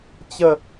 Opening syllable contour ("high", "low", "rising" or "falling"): falling